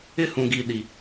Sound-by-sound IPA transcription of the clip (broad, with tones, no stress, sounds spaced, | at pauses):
ɪ˦ h ũ˨ ɡ i˨ ɗ i˨